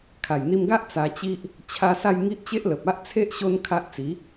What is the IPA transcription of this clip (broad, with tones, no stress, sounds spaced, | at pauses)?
kʰ a˨˩ j n̪ i˧ m ɡ a˦ ʔ t͡s a˧ t͡ɕ i˦ ʔ | t͡ɕʰ a˧ s a˥˧ j ŋ i˦ ʔ t͡ɕ e˦ ʔ l ə˨ p̚ a˦ ʔ t͡sʰ e˦ ʔ ɕ o˦ n kʰ a˦ ʔ t͡s i˨˦